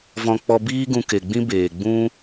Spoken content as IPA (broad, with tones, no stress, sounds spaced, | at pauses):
v ɔ̃˧ k͡p ɔ˧ b iː˦ ɡ ũ˧ k e˨ ɡ͡b ĩ˦ b eː˨ ɡ͡b ũ˦